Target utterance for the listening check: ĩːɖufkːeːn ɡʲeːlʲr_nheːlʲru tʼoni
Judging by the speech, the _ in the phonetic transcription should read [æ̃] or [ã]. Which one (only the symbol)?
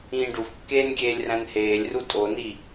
æ̃